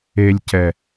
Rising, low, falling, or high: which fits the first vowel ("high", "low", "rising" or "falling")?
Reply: low